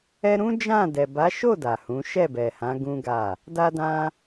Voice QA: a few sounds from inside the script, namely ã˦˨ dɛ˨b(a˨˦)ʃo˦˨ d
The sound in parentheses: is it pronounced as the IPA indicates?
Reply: yes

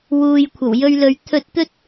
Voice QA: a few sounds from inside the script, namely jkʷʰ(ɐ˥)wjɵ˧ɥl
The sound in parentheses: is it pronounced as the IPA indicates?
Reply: no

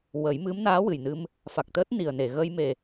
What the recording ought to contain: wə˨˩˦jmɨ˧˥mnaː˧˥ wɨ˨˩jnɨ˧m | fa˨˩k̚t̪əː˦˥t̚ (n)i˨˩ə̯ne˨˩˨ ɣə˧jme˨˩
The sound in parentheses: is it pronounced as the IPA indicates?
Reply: yes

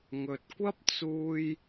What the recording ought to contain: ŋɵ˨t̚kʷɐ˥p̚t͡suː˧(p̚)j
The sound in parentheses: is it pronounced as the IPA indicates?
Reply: no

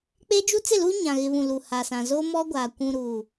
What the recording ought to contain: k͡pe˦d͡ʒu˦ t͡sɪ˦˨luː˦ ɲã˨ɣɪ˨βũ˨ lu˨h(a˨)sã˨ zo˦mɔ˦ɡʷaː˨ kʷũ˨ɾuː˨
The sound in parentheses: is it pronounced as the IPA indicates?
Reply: yes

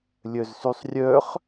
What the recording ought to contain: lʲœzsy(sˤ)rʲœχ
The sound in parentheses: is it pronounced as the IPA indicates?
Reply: yes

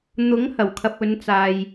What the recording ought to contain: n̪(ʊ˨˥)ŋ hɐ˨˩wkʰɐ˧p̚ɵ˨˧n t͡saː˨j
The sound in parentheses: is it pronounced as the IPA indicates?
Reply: yes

